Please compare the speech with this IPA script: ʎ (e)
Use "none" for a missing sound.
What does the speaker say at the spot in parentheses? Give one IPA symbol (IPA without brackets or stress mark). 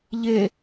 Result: e